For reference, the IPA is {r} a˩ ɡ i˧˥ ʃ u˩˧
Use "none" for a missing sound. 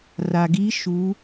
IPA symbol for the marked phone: r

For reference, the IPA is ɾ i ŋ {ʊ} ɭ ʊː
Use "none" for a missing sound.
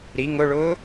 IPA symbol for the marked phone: ʊ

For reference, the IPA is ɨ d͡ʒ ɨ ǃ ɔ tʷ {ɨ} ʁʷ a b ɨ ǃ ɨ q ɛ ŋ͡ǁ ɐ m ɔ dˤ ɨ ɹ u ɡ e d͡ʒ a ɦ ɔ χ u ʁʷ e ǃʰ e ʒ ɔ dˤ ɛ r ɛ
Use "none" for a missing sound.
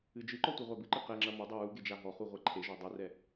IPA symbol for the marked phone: ɨ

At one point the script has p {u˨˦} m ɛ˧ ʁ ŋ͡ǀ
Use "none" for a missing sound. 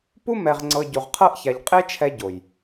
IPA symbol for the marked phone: u˦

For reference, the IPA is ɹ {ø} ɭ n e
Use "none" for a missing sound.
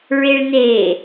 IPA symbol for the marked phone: e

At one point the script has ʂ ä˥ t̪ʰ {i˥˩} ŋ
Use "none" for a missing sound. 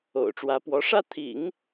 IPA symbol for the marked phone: ḭ˨˩˦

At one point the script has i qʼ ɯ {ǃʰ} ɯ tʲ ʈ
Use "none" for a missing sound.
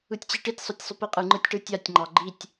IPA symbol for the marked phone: ŋ͡ǃ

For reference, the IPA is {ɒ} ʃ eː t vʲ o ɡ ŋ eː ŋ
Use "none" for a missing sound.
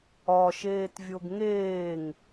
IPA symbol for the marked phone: ɒ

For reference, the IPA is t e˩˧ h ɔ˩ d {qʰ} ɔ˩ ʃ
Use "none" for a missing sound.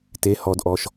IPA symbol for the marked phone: ʔ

